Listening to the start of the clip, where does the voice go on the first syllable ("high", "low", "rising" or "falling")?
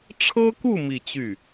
high